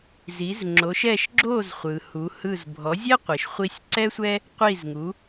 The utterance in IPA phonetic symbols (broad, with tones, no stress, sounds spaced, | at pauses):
z i˩˥ z ŋ͡ǁ o˩˥ ʃ ɛ˥˩ ʃ ɡ͡ǁ o˥˩ z χʷ ɯ˩ h u˩˥ h ɯ˥˩ z bʱ ɔ˩˥ zʲ ɛ˥ qʷ i˩ ʃ χʷ i˧ sʲ ǀ ɛ˥ sʷ ɛ˥ | qʷ i˥˩ z ŋ u˩˥